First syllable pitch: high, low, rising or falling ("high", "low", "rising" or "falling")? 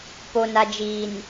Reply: low